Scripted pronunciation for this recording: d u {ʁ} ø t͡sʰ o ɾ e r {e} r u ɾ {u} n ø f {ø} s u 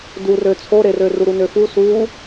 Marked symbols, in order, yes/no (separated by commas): no, no, yes, no